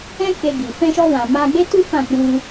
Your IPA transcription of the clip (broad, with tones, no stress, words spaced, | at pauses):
ɛ̃˦ke˧ɡi˨ fɛ̃˧ʃɔ˧wã˨ ma˧ɡ͡be˦tu˦ fã˦˨ k͡pũ˧